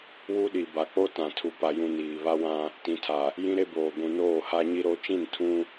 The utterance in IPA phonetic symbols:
w u˦ ɗ i˨ b a˨ k͡p o˦ t ã˨ tʰ u˨ p a˨ j ũ˨ n iː˨ β a˦ w ã˦ | t ĩ˨ tʰ a˨ | j ĩ˦ ɾ e˦ b oː˨ ɡʷ ũ˨ n oː˦˨ h a˦ ɲ i˦ ɾ o˦ t͡ʃ ĩ˦˨ n tʰ ũ˦

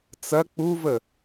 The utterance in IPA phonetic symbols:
t͡s ɐ k͡p u v ə

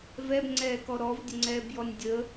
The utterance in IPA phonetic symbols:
v ɛ b ŋ͡ǀ ɛː k ɔ ɾ ɔ v dʲ ə ŋ͡ǀ ɛː b j ɔ nʲ dʲ ə

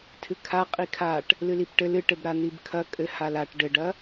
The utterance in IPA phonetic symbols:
tʰ ɨ kʰ a qʼ i kʰ a ʈ | l ɨ l i p ʈ ɘ l ɨ ʈ ɘ b ɾ a n̪ i b kʰ ɐ kʼ ɘ h a l a ʈ ɖ ɘ ɖ ɐ

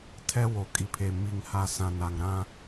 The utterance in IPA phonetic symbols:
tʰ ɛ˦ w o˨ kʼ i˨ pʰ e˨ m i˨ ŋ h a˨ s ã˨ n a˨ ŋ ɾ ã˦

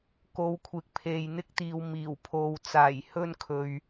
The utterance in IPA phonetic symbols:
k o˨˧ w kʷʰ ɪ˨ k̚ pʰ e˨ j n̪ ɪ˧ k̚ t̪ iː˨ w m iː˨˩ w pʰ o˨ w t͡s aː˨˩ j h ɵ˧ n kʰ ɵ˨ ɥ

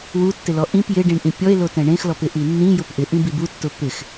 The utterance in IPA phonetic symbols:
w u tː ɪ l ɔ ʔ ĩ p j ɪ ɖ ĩ ɳ ʔ ĩ pʲ ɔ e̯ l o t ɛ̃ ɳ ẽ x l ɔ p ɪ ʔ i nː ĩ j ʊ p ʔ ɪ ʔ ĩ b i b u tː ʊ p ɪ x

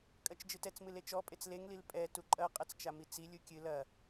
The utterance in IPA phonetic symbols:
kʼ ɐ t͡ʃ d͡ʒ ɨ t ɛ t͡s m ɨ l e t͡ʃ ɔ pʼ e t͡s l e ŋ l i l pʼ ɛ t u ǃʼ ɐ qʼ ɛ t͡s t͡ʃ a m i t͡s i lʲ u kʲ ɨ l ɐ

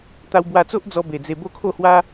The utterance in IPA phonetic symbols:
t̪ a˧ w b w a˧ t͡s o˦ ʔ d͡z ɔ˧ b e˨˩ d͡z e˧ b o˦ kʰ o˥˧ h w a˦

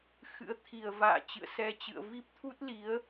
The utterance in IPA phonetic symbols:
x ɨ̰˧˥ ə̯ t̪ʰ i˨˩ ə̯ v a̰ː˧˨ t͡ɕ ɨ̰˧˨ ə̯ s ɛ˧ t͡ɕ ɨ̰˧˨ ə̯ v i˦˥ p̚ t̪ʰ u˦˥ t̚ l i˨˦ ə̯

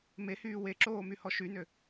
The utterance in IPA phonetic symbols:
m e h yː w e ǁ oː m y h ɔ ʃ y n ø

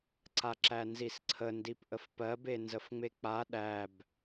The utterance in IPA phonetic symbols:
ǀ a ǁ æ n z i s ǀʰ ə n d i p ʔ ə f p ɜ b e n z ə f ŋ͡m e k͡p a ɗ æ b

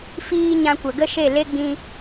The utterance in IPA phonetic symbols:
f iː˧ ɲ ã˧ kʷ ə˨ ɡ ə˦ ʃ e˦˨ l e˦ ɡ͡b ĩ˧

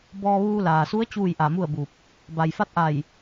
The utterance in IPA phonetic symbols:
b ɔː˧ ʋ uː˧ l aː˩ s u˧˥ ə̯ t͡ɕ uː˥˨ j ʔ a˧˩ m u˥˨ ə̯ b u˧˩ p̚ | b a˩ j f a˧˥ t̚ ʔ a˧˩ j

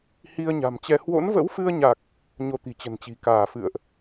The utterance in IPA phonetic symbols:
h i˧ ə̯ ɲ a̤˨˩ m t͡ɕ ɛ˧ h w o̰˧˥ n v ə̰˧˥ w f ɨ˧ ə̯ ɲ a˨˩ k̚ | ɲ o˧ t̪ i̤˨˩ t͡ɕ ə̤˨˩ n t͡ɕ i̤˨˩ k aː˧˩ f ɨ̰˧˨ ə̯ ʔ

